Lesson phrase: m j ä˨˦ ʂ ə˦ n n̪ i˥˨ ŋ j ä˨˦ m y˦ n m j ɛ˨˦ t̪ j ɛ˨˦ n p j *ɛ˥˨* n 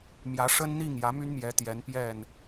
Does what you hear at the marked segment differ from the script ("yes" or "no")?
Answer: no